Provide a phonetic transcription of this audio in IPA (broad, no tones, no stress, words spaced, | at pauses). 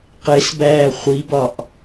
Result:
qesbæː χʷibɒʔ